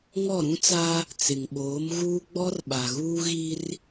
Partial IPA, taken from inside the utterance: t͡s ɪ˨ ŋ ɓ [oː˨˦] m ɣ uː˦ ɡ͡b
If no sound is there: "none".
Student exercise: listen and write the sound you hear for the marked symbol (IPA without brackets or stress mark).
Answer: oː˨˦